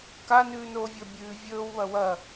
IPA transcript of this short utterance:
k a n ʉː n oː vʲ ɵː bʲ ʉː vʲ ɵː w β ɐ w ɐ

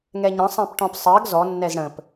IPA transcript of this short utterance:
ŋ ɛ ɲ ə̃ sˤ ɛ̃ p ʈ ɔ̃ p sˤ ɜ ɡ z ɔ nː ɛ z ɽ ə̃ p

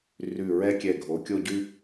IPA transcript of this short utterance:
r ʉ˧˩ ɹ ɛ˥ kʲ ɛ˧˩ ɡʱ o˩˧ kʲ o˥˧ ɟ ʉ˥

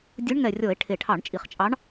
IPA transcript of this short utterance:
dʲ u˧˥ ɳ ŋ ɛ˨˩ rʲ ɔ˧˩˧ e̯ ʈʰ e˨˩ ʈʰ ɑ˧˩˧ ɳ t͡ʃʼ i˨˩ χ t͡ʃʼ ɑ˧˥ ɳ

